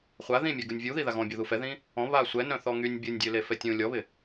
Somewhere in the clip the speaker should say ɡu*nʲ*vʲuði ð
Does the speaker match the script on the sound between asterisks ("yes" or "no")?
yes